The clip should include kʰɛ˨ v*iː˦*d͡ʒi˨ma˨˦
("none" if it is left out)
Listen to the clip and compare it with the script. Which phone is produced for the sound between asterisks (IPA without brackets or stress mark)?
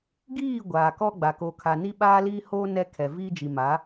iː˦